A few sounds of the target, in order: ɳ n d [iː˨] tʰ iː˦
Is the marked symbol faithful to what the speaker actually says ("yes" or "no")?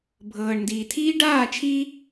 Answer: yes